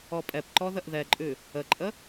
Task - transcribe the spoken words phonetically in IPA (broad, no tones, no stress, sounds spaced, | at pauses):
ɔ pʼ ɛ p ǃ ɔ ð ə ʔ ð ɛ ǃʼ ʉ | ə ǃʼ ə